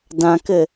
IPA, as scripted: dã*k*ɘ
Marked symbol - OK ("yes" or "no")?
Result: yes